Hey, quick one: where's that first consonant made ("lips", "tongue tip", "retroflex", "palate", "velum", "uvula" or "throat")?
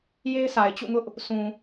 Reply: palate